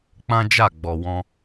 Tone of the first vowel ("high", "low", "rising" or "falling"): high